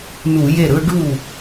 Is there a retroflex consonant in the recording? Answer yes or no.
yes